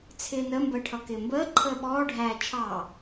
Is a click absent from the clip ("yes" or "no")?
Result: no